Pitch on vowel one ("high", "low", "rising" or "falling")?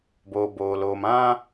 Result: low